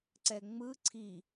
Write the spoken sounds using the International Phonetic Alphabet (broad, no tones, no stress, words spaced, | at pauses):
ǀɛŋ͡mɯ ǀʰi